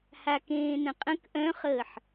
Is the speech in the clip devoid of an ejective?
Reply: no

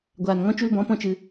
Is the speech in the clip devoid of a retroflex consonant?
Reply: yes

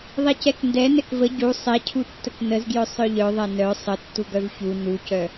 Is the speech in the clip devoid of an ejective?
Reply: yes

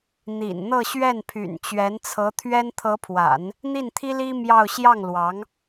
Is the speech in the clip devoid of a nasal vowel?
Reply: yes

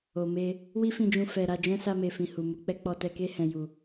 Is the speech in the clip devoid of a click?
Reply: yes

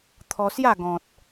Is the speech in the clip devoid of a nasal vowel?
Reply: no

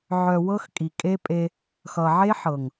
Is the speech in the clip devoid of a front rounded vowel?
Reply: no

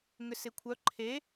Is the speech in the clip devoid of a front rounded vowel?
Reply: no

